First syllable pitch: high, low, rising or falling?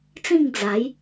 falling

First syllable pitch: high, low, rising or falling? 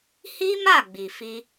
high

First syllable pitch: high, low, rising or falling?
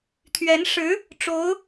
rising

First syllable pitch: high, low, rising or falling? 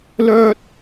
high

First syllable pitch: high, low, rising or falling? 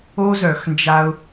high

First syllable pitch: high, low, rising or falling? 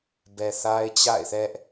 low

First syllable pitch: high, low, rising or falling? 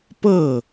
falling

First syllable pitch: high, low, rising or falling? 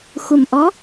low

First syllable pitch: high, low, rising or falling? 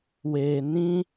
low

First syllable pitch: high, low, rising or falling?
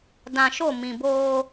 low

